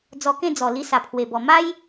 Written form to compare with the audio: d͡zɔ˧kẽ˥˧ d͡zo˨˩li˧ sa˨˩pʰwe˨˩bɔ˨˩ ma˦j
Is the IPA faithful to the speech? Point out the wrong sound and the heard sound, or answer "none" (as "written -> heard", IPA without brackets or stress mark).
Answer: o˨˩ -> ɔ˨˩